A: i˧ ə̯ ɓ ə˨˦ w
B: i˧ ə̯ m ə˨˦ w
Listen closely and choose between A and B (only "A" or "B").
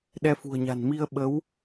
A